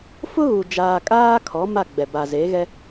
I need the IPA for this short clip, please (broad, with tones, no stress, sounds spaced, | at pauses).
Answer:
f ʊ˦ ɣ u˨ d͡ʒ aː˨ kʼ aː˦ kʰ ɔ˨˦ m a˦˨ ɡ͡b ɛ˨ b a˨ z e˨˦ ɣ ɛ˦